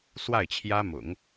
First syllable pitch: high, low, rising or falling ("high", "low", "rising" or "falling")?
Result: falling